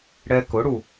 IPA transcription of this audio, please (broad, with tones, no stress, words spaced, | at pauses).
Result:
ɽɛ˧kʊ˩˥ɽu˩